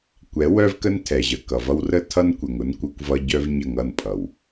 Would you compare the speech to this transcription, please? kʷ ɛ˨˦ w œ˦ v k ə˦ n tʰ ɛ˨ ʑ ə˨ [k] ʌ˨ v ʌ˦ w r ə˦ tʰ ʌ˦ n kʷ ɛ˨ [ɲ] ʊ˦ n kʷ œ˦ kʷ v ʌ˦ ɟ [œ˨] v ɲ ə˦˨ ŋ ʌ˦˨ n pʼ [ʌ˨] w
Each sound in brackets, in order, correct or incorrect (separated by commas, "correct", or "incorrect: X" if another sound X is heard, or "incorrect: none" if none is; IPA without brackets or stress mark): correct, incorrect: ŋ, incorrect: œ˦, correct